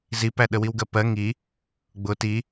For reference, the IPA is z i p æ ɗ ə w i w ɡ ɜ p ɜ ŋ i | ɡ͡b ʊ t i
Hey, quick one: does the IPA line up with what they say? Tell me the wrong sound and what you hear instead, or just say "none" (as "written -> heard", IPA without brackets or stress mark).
none